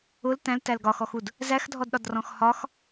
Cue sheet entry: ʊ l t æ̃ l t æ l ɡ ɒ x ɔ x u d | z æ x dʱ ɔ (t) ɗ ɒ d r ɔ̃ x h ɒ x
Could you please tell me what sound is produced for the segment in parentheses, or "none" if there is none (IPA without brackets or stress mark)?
d